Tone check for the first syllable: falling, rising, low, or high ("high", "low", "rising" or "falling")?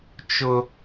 high